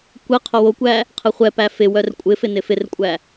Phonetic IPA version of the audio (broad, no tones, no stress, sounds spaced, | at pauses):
kʷ ɘ qʰ o w o kʷ æ | qʰ ɘ χʷ ɛ p æ f ɪ w œ r kʷʼ ɪ f ɪ n ɪ f ɪ r kʷʼ æ